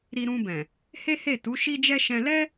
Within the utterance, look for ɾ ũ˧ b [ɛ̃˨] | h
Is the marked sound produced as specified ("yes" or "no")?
yes